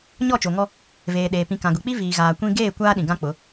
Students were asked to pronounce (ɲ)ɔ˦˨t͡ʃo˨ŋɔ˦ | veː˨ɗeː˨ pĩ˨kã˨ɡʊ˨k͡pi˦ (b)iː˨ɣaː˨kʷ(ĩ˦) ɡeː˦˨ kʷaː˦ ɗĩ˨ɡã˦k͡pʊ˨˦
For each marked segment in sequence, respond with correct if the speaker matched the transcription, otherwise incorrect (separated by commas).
correct, incorrect, correct